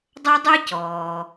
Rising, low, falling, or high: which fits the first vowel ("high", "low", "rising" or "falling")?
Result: high